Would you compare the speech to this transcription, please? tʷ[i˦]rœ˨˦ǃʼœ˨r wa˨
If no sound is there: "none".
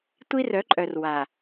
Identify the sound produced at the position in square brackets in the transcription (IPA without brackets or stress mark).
i˦